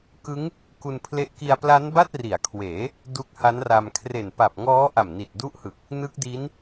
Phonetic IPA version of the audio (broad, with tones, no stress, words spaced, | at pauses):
kɯ˦˥ŋ | ku˧npʰle˦˥ʔ ki˧a̯pla˦˥n ba˥˩t̚ri˩˦a̯kʰweː˩˦ | du˦˥k̚ha˦˥nra˧m kʰre˨˩npa˨˩p̚ŋɔː˦˥ ʔa˨˩mni˨˩t̚du˦˥ʔhɯ˨˩k̚ | nɯ˦˥k̚di˦˥n